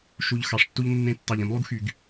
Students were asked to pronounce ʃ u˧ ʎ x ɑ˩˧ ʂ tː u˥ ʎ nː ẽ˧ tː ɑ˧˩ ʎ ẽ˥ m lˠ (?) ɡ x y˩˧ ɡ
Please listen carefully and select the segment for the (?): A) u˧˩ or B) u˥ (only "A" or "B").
B